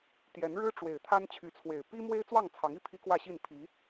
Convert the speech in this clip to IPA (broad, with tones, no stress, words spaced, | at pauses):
t̪jɛ˨˦nɻɻ̩˦ʈ͡ʂwe˨˩ɪ̯ t̪ʰa˦nt͡ɕʰy˨˦t͡sʰwe˨˩ɪ̯ pi˦mwe˦ɪ̯ t͡swɑ˥˨ŋt͡sʰɑ˨˦ŋi˥˨ pʰi˦kwä˥˨ɕi˥˨n pʰi˨˦